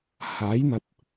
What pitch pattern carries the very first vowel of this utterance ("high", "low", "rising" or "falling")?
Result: rising